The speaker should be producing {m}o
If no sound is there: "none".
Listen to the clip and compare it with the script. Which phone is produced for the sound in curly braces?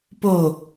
p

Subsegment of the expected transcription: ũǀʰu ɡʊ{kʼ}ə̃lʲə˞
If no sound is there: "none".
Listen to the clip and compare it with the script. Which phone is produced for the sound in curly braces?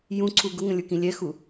ŋ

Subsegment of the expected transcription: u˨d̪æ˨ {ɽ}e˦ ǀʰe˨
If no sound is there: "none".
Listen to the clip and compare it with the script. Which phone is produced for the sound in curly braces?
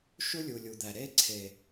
ɾ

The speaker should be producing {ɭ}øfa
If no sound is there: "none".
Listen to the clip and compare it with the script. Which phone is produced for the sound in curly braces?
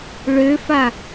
ɭ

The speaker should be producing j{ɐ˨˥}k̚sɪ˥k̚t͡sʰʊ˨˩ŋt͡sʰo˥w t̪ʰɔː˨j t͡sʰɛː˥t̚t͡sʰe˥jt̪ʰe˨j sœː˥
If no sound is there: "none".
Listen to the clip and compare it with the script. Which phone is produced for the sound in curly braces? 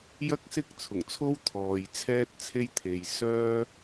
ɐ˥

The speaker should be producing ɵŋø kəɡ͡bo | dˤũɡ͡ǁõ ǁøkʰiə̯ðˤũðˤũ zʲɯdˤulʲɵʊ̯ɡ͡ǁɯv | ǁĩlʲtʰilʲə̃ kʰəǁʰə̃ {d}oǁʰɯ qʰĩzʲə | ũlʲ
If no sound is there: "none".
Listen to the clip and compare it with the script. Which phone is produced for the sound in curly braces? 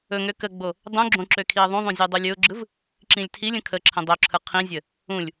dˤ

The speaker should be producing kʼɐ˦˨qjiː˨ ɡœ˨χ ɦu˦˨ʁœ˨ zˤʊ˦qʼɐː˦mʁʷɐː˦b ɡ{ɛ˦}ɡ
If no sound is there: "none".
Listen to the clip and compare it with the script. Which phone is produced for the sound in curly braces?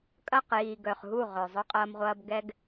ɛ˦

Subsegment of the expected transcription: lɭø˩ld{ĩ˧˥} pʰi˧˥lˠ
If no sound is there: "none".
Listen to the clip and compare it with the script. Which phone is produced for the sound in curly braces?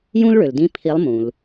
ĩ˧˥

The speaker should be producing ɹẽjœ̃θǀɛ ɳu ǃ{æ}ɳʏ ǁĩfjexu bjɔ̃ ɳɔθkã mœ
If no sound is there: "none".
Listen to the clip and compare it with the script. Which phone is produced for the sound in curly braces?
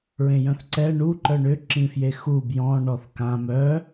œ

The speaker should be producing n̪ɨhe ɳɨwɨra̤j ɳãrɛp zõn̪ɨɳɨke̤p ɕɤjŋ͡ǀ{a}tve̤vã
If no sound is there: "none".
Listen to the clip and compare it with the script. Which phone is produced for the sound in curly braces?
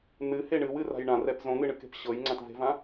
ã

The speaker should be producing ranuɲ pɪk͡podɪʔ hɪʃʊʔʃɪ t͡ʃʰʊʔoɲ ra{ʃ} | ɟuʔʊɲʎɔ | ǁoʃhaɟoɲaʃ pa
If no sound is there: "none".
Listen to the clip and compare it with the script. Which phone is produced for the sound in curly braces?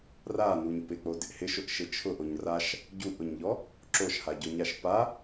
ʃ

